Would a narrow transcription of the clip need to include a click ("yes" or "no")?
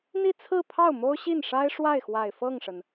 no